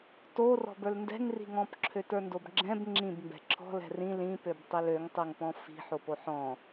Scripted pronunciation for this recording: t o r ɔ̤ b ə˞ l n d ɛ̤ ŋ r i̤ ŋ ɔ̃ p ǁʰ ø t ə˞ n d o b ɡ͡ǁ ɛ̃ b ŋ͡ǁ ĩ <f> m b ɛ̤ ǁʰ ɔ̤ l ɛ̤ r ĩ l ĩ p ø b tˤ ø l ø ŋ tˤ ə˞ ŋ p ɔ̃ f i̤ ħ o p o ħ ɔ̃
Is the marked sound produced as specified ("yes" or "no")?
no